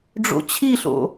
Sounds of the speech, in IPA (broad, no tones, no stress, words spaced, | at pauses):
ɖ͡ʐo̰t͡ɕʰiɬo̰